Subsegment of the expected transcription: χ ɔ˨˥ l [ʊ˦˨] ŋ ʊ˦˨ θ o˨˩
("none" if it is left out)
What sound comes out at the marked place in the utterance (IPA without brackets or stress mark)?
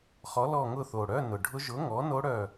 ɔ˦˨